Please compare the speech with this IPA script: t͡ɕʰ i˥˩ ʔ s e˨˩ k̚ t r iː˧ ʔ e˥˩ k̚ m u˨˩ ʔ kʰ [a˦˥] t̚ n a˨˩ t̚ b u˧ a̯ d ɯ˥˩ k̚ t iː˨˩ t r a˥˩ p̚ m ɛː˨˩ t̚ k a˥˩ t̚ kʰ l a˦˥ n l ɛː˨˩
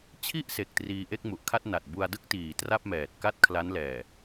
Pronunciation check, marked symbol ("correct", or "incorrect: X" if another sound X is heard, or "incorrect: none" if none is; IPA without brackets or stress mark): incorrect: a˥˩